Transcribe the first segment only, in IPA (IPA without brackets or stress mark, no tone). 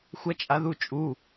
xʷ